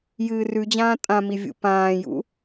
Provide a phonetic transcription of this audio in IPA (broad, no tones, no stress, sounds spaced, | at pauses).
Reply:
j ɨː r ʉ d͡ʑ ãː tʼ ã m i vʲ ṵ p ãː j ṵ